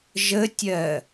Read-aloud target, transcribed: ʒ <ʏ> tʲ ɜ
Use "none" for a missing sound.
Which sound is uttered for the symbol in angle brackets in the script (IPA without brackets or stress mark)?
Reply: ə